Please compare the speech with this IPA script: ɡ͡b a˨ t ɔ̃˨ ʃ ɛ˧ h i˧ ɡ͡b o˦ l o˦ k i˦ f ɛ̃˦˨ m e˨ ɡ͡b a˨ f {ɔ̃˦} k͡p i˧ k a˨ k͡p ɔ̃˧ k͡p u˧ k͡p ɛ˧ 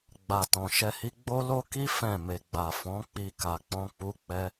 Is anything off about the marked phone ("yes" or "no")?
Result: yes